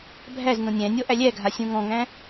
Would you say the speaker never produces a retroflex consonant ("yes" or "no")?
yes